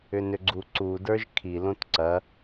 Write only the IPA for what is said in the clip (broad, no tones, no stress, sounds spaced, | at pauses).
ʏ n ʏ ɡ͡ǀ u ǀ u d ə˞ ʒ kʰ i l õ t ǀ ɐ